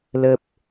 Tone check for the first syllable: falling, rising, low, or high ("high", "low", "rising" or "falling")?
low